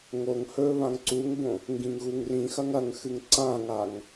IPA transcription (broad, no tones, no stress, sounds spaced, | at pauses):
ŋ o ŋ h ɵ β ã ŋ ǀ u ŋ b õ | ŋ ɡ ĩ ŋ ɣ u ŋ r ĩ x ɐ ŋ ɐ ŋ x ɨ ŋ ǀ ã ŋ a ŋ